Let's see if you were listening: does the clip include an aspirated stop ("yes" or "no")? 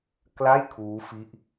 yes